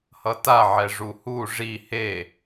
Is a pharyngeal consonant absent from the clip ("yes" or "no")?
no